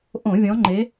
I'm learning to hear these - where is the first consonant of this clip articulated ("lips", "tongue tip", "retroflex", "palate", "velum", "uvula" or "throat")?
throat